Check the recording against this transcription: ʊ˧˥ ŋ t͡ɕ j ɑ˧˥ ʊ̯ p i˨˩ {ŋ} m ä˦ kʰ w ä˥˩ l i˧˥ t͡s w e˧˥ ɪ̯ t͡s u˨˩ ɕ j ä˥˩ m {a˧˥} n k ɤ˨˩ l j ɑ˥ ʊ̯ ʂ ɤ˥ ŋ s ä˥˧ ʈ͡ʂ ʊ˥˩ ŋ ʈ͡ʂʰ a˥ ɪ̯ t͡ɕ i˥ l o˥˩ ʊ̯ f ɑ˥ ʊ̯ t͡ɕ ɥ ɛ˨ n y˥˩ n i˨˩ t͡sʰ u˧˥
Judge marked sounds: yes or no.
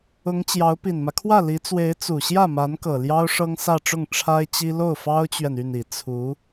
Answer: no, yes

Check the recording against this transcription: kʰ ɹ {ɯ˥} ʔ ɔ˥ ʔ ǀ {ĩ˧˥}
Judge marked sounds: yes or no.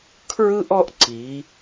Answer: yes, no

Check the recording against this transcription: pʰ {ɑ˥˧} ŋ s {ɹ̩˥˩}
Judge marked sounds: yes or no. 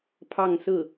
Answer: yes, yes

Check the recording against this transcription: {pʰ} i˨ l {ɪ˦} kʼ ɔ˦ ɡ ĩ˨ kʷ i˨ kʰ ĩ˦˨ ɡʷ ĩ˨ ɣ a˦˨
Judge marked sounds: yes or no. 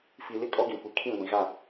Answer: no, yes

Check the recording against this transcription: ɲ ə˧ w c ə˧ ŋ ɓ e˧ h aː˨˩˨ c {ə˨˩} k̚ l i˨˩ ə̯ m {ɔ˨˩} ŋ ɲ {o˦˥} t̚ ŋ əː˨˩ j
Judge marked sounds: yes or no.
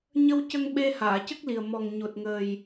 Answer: no, yes, no

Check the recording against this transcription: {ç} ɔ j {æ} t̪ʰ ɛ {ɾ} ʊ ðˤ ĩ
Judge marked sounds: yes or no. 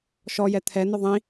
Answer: no, no, no

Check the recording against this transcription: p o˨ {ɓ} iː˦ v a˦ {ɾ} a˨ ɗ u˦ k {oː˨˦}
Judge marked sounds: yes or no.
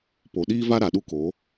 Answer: no, yes, yes

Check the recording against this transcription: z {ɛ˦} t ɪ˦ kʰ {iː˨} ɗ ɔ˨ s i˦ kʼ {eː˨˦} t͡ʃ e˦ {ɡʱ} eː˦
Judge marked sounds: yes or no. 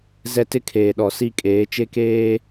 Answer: yes, no, yes, no

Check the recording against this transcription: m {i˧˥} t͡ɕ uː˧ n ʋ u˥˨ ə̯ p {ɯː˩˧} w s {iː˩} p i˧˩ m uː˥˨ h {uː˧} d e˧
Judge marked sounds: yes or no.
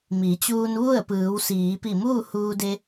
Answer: no, yes, no, yes

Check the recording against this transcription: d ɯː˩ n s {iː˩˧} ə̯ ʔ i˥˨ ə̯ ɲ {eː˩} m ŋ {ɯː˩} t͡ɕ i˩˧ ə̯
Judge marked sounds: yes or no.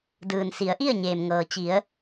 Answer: no, yes, no

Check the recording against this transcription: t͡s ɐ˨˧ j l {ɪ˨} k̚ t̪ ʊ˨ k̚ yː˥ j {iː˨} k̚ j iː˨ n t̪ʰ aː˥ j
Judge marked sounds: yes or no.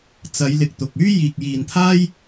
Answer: yes, yes

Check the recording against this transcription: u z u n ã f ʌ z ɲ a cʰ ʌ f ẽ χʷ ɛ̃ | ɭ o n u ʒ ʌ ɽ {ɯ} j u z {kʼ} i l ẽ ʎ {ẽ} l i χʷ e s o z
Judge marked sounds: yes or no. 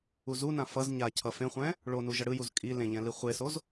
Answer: yes, yes, no

